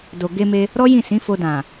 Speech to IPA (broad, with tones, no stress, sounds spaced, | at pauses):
d o˨ ɡ e˧ m e˧ | ɾ ɔ˦ j ĩ˦˨ s ĩ˨˦ f o˧ d ã˨